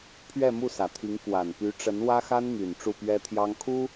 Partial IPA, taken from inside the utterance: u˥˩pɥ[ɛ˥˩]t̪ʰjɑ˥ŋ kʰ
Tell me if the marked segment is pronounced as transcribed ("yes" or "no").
no